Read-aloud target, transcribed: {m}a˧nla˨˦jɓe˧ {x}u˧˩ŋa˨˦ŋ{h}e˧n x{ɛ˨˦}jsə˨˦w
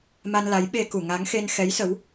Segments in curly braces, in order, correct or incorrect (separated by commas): correct, incorrect, incorrect, correct